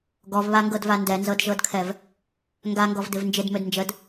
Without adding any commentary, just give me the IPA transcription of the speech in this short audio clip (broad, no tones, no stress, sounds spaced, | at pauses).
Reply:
ɡ ɔ v β a ŋ ɡ ɤ d v a n d ɛ n z ɤ d ʒ ɤ d kʰ ɛ v | ŋ ɡ a ŋ ɡ ɔ v d ɪ v n d͡ʒ ɪ d m ø d n d͡ʒ ə d